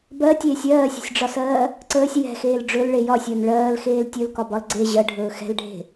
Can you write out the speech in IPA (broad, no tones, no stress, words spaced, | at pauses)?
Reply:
bɜtʲeːsʲ ɜːsʲə̤sʲɖ͡ʐɒsɜː | ǀəːsʲ jɛ̤xeːl ɖ͡ʐɵlɭe jɒsʲəːn ɭɜːlxeːl tʲɵlkɒbɒl ɡ͡ǀe ʑɜɖʱɵː xɛ̤lɖʱe̤